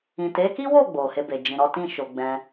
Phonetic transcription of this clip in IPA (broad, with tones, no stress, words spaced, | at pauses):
ĩ˨ te˨˦ki˦wo˦˨ ɡ͡bo˨he˧be˨ d͡ʒĩ˨ɾɔ˨˦ tĩ˦˨ʃo˨ɡ͡bɛ̃˧